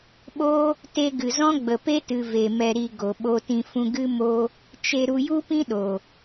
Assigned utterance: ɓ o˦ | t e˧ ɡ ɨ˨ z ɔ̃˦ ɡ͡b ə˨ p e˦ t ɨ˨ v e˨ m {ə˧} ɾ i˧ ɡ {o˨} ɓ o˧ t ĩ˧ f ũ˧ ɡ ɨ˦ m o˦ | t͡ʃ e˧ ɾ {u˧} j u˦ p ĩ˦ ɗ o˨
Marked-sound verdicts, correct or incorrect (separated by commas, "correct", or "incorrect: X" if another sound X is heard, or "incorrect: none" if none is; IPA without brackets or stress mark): incorrect: ɛ˧, correct, correct